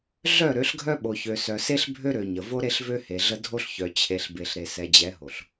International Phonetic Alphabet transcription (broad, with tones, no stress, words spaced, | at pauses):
ɮœ˦˨ ɾø˨˦ɬɡʱœ˦ ɓo˨çø˨ sœ˨se˦ɬbʱø˦ ɾø˨ ɲə˨ vo˦ɾe˦ɬvø˦ he˨ɮə˦ dʱo˦ɬçœ˨ t͡ɕʰe˨ɬbe˨ɬ ɾe˨sɛ˨d͡ʑɛ˨˦ɦo˨ɬ